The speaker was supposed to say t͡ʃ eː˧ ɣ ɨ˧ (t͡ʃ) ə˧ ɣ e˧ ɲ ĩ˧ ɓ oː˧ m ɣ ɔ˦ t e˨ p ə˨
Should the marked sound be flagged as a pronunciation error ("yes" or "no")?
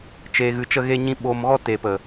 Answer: no